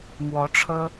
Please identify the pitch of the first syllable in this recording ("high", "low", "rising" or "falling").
rising